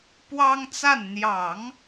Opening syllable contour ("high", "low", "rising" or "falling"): high